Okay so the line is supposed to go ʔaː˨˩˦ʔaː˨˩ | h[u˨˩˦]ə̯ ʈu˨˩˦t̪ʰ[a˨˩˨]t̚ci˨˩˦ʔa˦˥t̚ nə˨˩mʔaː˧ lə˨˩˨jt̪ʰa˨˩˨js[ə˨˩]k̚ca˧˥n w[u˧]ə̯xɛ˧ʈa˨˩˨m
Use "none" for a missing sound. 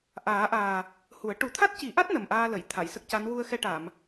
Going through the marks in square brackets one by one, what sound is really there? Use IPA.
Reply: u˨˩˦, a˦˥, ə˦˥, u˧

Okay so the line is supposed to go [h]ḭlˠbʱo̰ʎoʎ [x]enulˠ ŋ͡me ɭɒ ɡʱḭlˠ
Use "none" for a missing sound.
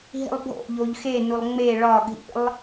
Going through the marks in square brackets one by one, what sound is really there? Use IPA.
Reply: ɦ, x

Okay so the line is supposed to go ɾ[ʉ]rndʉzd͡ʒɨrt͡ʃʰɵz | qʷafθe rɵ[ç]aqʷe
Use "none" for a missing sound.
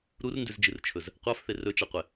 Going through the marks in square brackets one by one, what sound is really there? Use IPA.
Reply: u, t͡ʃ

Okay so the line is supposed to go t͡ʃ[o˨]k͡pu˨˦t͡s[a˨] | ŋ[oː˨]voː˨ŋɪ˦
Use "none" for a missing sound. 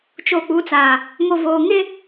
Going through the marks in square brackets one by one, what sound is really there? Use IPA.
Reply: o˨, a˨, o˨

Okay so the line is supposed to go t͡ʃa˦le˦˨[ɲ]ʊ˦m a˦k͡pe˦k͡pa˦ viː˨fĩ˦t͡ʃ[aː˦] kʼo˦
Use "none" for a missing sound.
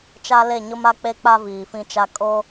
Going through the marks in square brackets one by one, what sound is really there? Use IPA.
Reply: ɲ, a˦

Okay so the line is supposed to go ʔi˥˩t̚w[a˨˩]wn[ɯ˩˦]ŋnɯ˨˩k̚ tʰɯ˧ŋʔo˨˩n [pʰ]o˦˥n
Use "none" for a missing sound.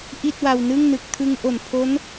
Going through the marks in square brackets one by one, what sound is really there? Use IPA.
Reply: a˧, ɯ˥˩, pʰ

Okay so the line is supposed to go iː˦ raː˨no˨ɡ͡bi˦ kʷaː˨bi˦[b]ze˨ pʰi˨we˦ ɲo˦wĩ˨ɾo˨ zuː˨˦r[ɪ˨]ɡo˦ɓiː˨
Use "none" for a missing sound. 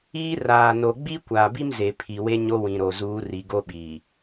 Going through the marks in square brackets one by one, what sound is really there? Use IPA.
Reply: m, i˨

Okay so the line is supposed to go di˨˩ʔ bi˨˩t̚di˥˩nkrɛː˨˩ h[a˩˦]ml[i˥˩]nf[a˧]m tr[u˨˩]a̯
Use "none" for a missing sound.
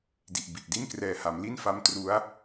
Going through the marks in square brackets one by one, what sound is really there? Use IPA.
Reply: a˩˦, i˥˩, a˧, u˦˥

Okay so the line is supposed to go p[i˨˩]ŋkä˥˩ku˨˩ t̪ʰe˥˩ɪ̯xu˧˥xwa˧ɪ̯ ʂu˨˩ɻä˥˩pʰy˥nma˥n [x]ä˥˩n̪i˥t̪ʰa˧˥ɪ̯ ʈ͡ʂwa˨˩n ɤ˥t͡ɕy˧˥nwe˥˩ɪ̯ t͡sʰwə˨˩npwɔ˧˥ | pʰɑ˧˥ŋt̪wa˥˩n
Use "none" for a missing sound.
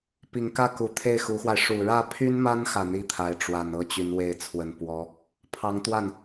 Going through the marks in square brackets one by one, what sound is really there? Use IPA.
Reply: i˨˩, x

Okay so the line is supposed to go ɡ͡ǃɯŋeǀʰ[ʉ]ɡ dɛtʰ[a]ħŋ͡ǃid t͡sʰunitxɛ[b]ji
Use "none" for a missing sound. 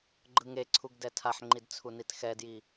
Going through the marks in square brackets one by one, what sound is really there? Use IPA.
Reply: u, a, d

